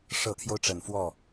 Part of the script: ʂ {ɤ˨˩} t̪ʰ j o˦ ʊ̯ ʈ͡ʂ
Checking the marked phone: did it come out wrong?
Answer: no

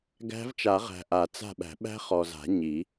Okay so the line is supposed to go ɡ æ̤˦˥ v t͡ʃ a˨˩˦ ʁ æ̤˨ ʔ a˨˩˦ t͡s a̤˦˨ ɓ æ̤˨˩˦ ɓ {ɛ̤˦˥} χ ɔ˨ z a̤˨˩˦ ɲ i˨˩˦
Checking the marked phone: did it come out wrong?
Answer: yes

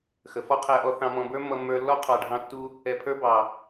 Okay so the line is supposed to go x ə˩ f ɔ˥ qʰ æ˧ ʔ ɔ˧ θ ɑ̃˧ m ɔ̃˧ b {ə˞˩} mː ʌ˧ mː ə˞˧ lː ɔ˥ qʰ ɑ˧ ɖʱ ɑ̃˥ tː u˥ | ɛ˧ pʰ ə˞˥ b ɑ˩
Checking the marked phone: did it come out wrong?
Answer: yes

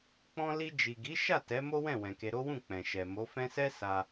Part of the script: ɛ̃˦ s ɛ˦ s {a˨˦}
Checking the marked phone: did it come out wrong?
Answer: yes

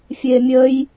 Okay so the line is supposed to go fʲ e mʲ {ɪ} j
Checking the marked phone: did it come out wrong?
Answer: yes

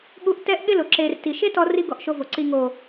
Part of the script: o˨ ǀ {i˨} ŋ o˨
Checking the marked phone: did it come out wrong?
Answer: no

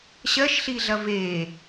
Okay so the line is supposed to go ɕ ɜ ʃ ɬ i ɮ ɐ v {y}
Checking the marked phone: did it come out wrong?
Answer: yes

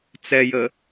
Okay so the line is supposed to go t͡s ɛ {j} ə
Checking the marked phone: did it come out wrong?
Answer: no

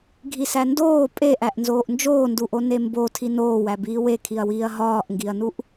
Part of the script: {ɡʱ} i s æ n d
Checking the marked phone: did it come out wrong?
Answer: no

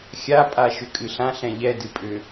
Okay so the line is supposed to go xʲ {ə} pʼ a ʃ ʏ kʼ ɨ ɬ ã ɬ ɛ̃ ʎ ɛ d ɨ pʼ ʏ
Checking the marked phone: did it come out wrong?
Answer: yes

